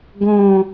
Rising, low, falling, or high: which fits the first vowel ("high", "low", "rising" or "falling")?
low